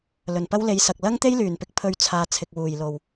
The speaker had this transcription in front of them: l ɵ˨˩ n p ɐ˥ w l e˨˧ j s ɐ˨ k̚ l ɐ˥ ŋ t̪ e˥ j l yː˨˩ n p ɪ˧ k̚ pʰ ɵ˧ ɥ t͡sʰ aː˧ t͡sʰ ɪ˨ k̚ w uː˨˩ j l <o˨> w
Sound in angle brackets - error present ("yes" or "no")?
yes